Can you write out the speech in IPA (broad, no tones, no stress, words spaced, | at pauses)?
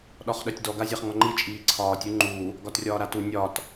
ɗɒχɗœtʲdɔ ɡazʲaχŋɔŋ͡ǃi t͡ʃʼiːǀʰɒːtʲ uŋ͡ǃu | ɡɒtrʲɒːɾatu nʲɒt